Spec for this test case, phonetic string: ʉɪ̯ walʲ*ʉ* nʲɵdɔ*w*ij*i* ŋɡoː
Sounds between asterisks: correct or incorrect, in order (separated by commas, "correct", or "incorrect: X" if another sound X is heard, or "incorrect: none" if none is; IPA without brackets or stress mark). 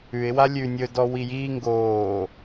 correct, correct, incorrect: iː